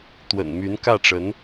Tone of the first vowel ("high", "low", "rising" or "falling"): low